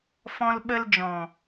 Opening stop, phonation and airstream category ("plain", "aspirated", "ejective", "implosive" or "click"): implosive